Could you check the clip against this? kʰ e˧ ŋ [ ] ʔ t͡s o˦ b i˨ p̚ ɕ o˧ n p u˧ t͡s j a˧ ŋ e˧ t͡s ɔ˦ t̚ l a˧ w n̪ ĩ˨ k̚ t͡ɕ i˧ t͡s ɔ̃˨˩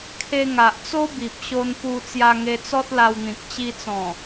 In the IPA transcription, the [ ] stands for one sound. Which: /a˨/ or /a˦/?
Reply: a˨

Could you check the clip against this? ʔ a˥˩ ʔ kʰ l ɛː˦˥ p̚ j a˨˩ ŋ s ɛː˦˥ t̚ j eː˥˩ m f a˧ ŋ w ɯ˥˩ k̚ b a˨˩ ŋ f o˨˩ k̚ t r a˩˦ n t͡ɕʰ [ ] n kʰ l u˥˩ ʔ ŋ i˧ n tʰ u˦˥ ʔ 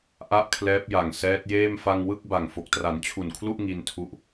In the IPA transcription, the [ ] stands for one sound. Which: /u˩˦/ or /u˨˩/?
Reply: u˨˩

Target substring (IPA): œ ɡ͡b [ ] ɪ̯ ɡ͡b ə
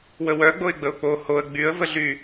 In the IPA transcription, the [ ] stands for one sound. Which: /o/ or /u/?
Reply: o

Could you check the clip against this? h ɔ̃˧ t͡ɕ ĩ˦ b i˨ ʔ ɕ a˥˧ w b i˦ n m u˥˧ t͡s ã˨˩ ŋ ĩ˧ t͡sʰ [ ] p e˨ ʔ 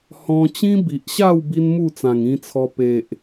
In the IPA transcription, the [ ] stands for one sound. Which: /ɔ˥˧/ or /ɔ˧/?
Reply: ɔ˧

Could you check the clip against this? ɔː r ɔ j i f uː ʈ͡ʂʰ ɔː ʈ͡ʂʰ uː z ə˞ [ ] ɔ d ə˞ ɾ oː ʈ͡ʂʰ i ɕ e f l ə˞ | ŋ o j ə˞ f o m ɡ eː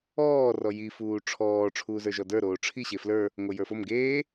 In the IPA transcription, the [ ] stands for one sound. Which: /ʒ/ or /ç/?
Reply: ʒ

